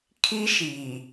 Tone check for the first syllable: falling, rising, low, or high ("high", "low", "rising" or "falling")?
high